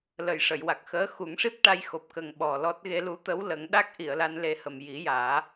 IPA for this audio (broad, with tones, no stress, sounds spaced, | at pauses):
l ə˨˩ j ʂ ə˨˩˨ j w a˨˩ k̚ x əː˧˥ x u˨˩˦ ŋ ʂ i˦˥ p̚ ʈ a˧ j x o˨˩ p̚ k ə˨˩ ŋ ɓ ɔ˨˩ l ɔ˦˥ t̚ ɣ e˧ l u˧˥ t̪ ə˧˥ w l ə˨˩˦ ŋ ɗ a˦˥ k̚ ʔ i˨˩˨ ə̯ l a˧ n l e˧ h ə˨˩ m j i˨˩˦ j aː˨˩˦